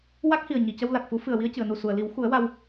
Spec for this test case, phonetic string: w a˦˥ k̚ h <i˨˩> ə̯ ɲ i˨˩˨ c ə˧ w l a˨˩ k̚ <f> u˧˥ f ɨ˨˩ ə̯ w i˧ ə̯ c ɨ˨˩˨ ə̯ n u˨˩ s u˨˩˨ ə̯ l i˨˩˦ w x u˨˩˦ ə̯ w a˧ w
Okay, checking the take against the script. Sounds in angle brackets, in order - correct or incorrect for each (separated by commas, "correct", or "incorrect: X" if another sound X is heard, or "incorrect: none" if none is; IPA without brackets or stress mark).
correct, correct